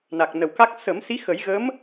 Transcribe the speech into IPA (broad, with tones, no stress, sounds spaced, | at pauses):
n a˨˩ k̚ n ə˨˩ w k a˦˥ k̚ s ə˨˩˦ m s i˧˥ x ə˨˩˦ j ɣ ə˧˥ m